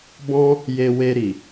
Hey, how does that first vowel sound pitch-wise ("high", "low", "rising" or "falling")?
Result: high